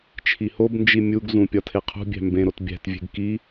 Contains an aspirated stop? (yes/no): yes